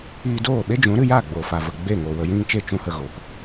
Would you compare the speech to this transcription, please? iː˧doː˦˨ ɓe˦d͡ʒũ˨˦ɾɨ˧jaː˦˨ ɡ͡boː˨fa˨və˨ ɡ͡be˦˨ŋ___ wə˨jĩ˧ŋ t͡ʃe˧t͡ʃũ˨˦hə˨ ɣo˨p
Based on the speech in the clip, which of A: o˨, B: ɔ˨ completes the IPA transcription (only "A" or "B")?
A